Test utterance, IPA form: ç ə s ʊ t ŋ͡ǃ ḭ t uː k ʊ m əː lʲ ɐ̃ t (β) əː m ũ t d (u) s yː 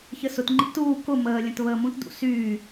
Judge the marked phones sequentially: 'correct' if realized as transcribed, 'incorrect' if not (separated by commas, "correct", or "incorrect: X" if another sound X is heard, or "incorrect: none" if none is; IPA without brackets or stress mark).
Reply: correct, incorrect: ṵ